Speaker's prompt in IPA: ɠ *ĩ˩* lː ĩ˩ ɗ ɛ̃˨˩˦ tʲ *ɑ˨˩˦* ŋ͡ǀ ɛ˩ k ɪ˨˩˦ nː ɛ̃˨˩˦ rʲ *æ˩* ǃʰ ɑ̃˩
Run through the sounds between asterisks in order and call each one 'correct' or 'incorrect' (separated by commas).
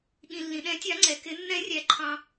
correct, correct, correct